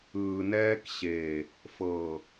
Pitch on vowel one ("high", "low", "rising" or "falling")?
low